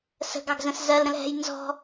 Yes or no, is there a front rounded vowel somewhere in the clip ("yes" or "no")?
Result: no